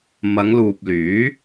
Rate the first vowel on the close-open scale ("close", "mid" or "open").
open